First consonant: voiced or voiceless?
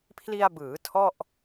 voiceless